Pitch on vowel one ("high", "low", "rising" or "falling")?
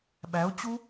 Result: rising